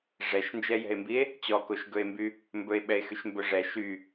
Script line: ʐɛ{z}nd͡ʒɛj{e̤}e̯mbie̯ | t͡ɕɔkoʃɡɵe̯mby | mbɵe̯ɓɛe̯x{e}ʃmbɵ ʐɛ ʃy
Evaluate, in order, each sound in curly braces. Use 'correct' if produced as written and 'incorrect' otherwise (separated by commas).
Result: incorrect, incorrect, incorrect